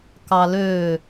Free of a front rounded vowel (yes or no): no